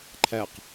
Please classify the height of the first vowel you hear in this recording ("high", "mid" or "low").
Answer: low